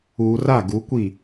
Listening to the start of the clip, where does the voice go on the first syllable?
low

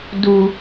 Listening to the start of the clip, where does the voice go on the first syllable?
low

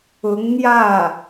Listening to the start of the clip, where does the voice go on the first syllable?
rising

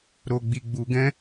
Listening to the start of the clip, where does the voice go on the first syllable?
low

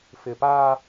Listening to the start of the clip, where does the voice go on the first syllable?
low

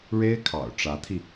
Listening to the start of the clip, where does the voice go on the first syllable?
high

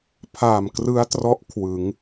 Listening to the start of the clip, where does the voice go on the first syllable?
low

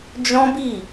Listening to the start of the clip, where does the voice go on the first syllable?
high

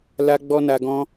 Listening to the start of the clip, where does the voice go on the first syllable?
high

